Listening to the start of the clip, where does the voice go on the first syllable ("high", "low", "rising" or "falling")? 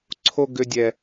high